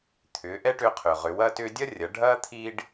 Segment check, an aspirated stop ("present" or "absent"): present